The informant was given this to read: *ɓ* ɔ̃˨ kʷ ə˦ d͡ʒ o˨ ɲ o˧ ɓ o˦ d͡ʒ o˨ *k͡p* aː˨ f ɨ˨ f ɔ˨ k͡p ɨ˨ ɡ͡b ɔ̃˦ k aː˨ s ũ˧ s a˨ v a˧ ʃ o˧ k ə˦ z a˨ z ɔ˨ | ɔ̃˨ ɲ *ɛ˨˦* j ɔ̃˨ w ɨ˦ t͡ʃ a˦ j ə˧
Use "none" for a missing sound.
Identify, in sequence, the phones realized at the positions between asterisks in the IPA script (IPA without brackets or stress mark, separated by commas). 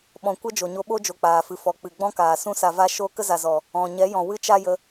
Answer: ɓ, k͡p, ɛ˨˦